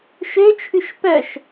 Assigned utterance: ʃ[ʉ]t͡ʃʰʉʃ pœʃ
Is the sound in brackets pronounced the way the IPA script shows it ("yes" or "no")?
no